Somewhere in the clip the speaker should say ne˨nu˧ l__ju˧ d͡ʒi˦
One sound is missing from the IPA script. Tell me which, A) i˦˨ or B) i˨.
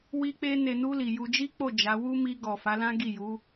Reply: B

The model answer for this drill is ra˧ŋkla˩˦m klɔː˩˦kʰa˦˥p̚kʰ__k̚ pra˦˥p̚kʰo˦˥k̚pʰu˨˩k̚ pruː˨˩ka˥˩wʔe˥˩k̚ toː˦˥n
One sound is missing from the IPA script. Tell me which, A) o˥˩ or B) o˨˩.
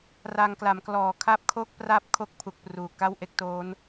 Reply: A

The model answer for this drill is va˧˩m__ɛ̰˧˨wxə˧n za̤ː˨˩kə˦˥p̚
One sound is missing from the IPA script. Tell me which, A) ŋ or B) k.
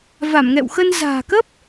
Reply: A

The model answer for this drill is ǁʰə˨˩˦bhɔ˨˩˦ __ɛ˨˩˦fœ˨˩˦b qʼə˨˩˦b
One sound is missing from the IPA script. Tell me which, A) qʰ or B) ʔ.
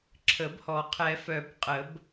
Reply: A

